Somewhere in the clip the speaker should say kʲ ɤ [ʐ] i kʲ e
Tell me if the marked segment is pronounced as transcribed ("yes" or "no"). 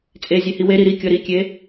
no